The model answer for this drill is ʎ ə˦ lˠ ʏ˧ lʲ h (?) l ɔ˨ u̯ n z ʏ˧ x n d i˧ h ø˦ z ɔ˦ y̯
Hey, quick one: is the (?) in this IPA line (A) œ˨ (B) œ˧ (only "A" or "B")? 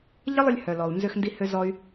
A